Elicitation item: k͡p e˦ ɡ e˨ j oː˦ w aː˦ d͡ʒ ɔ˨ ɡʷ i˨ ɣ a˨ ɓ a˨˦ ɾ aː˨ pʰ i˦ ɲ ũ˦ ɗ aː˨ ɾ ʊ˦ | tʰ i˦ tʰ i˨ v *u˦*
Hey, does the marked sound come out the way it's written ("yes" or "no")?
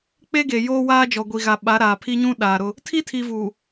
no